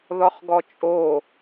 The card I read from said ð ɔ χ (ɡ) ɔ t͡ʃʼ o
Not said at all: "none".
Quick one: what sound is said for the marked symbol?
ɡ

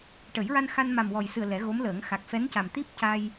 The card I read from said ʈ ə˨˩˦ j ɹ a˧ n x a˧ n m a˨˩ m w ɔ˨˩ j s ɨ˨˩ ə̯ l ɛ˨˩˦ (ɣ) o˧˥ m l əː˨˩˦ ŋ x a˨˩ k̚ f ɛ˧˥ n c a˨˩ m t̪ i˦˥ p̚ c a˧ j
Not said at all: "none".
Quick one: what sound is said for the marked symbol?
ɣ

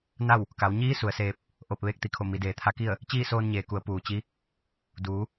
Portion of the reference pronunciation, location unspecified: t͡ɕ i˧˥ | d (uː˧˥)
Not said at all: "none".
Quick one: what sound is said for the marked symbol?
uː˩˧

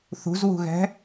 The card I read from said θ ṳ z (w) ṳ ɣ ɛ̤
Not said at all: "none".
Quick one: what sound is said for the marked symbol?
w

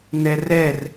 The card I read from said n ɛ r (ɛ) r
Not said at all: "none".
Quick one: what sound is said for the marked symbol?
ɛ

